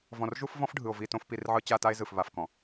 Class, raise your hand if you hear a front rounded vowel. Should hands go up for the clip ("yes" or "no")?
no